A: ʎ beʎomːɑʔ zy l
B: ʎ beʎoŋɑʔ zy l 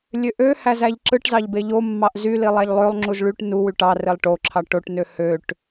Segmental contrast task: A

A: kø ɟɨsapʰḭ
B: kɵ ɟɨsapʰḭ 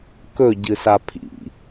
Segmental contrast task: B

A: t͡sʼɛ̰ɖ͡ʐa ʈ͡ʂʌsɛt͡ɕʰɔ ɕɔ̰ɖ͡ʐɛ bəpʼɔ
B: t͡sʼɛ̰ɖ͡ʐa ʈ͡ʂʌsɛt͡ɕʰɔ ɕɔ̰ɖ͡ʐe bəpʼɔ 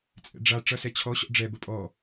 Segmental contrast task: A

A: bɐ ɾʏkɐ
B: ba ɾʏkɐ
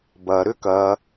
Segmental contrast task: A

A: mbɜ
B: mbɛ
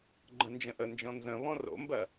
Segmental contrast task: A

